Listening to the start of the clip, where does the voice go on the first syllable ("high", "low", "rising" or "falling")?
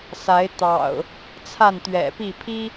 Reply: rising